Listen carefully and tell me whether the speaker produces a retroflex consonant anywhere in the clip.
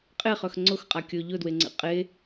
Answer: no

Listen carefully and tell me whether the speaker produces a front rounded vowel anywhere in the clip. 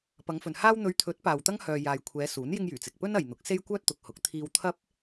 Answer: yes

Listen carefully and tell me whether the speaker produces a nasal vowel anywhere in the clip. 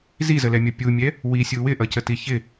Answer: no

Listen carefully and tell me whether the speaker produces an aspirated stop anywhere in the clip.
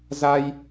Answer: no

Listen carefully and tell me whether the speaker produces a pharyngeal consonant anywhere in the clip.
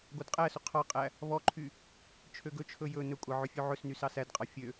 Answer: yes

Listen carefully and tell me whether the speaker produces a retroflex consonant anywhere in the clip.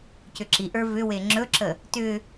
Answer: no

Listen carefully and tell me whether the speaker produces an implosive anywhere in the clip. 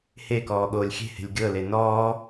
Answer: yes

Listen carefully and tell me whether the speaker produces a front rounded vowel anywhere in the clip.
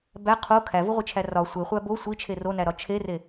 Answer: no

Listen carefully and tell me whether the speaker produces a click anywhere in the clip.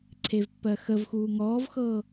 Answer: yes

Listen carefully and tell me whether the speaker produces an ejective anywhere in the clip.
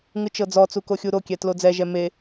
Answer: no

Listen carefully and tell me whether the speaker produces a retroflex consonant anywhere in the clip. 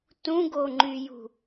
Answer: no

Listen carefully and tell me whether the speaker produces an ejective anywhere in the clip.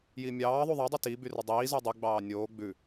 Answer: no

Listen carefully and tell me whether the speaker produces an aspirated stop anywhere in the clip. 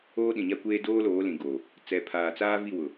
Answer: yes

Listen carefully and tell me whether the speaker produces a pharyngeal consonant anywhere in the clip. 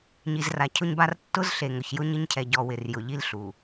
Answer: no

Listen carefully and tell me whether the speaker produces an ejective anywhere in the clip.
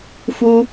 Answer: no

